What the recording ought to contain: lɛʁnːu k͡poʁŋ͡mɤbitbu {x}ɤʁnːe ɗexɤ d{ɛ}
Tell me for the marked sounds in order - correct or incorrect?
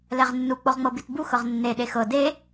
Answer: correct, incorrect: e

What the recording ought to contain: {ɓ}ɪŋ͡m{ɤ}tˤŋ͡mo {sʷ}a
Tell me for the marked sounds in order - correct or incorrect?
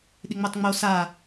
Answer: incorrect: ɗ, incorrect: o, incorrect: s

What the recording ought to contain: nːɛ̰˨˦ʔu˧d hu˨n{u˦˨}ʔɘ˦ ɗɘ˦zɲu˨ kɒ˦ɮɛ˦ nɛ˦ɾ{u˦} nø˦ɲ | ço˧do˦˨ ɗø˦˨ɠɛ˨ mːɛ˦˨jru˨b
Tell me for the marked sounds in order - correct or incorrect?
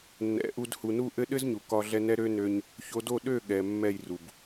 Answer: correct, incorrect: ø˦

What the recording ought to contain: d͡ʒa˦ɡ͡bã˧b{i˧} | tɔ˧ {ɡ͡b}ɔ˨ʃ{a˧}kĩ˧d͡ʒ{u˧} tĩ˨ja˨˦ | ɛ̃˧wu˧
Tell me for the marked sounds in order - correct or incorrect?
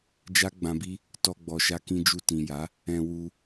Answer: incorrect: i˦, correct, correct, correct

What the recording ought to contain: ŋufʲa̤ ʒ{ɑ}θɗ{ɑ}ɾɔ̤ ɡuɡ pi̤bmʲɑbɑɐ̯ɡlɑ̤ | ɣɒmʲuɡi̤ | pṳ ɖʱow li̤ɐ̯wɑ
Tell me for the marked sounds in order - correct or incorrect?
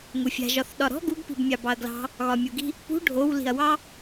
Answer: incorrect: ɒ, incorrect: ɒ

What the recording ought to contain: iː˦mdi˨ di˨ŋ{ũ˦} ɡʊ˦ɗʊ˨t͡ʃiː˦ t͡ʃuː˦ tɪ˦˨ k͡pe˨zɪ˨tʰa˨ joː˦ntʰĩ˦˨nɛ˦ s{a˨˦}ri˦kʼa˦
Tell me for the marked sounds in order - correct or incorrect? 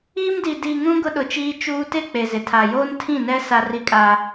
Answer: correct, incorrect: a˦

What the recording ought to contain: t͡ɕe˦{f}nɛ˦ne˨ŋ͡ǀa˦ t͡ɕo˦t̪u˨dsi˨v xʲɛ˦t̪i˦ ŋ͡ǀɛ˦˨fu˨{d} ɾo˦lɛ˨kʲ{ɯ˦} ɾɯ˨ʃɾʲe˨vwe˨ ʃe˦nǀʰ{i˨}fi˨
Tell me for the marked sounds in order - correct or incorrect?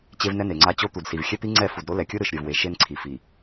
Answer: incorrect: v, correct, correct, correct

